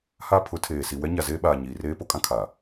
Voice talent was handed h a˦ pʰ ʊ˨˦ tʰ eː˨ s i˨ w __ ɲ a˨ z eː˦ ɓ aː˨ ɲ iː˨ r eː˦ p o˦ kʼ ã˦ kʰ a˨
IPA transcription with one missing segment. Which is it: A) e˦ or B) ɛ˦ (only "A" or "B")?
B